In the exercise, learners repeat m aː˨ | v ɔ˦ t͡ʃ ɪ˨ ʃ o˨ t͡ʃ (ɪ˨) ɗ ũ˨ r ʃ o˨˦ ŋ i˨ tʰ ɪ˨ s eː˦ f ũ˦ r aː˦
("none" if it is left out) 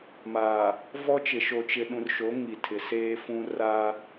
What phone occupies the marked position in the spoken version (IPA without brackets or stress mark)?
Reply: ɪ˨